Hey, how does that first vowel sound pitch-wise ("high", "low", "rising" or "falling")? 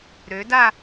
rising